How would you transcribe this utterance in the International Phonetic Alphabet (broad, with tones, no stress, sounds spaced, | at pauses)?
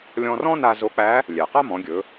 lʲ ɔ̃˧ r ɔ̃˥ n a˧ z o˧˥ k͡p æ˧˥ | lʲ ɛ˩ q a˥ m ɔ̃˩˧ ɡʲ ɵ˩˧